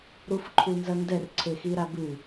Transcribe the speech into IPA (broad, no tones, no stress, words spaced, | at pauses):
ɾufǃʰunzɐndɛr ǀʰexiɾabɨ